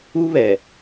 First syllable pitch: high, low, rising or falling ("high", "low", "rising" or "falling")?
high